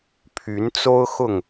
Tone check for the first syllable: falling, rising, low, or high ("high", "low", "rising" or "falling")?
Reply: rising